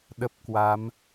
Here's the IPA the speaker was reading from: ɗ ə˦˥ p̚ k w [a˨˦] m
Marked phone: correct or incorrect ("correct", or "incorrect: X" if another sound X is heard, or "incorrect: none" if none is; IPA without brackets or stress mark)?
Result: correct